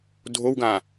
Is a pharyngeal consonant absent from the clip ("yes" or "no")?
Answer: yes